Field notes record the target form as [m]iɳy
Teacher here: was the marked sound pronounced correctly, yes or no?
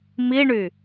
yes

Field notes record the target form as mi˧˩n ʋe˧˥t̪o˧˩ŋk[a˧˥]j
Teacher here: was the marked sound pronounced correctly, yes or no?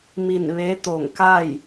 no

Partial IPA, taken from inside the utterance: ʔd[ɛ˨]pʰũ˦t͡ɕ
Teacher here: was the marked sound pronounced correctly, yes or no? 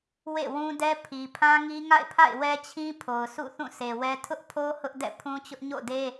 no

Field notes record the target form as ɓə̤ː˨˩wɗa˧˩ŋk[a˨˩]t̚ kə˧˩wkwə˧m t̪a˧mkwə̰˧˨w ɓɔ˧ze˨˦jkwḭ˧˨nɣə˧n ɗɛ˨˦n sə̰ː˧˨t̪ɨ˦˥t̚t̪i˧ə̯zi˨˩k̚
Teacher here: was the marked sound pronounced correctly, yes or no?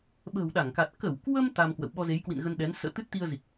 yes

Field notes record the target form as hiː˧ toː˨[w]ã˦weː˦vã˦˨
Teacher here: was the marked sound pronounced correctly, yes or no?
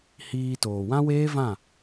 yes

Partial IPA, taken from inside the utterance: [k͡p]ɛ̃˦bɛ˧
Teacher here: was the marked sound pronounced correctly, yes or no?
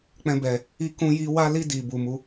yes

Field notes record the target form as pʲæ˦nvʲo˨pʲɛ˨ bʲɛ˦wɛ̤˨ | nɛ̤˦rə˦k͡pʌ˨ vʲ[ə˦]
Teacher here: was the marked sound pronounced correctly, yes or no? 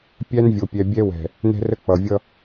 no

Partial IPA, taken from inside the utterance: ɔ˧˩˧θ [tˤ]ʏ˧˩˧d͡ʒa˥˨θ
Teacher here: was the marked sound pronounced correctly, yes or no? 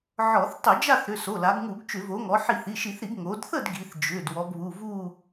yes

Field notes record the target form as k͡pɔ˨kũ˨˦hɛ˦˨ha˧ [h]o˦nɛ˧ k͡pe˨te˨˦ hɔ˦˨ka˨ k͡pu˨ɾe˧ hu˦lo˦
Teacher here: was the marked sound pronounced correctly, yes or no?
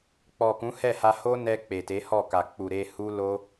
yes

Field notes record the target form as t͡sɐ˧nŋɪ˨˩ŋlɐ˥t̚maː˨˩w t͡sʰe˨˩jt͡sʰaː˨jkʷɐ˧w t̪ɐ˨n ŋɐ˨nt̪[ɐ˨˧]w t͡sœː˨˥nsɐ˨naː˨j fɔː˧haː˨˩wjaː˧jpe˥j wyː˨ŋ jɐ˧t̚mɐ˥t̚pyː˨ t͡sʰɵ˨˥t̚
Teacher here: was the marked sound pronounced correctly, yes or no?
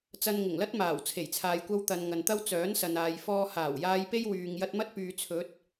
no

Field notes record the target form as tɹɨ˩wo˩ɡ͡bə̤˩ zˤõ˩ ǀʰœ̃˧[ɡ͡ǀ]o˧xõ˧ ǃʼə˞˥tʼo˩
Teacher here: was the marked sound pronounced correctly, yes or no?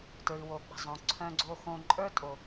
yes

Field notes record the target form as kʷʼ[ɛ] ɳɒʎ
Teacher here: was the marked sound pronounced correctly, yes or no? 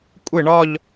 no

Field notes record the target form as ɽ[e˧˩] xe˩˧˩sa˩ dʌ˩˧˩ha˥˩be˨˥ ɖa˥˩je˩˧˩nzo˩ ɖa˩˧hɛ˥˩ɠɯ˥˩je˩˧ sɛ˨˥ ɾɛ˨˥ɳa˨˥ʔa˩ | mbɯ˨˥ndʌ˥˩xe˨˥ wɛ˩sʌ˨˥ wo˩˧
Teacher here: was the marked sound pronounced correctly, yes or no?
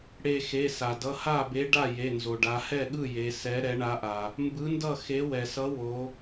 yes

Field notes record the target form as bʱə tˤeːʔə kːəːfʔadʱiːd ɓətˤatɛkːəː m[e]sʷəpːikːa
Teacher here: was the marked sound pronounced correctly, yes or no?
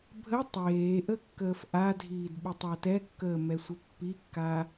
no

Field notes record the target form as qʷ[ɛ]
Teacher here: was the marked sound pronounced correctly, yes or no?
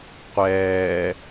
no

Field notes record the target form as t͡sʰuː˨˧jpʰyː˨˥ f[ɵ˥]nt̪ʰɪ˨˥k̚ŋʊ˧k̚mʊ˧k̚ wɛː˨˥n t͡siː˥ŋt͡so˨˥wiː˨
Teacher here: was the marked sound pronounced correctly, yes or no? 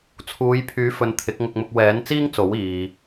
no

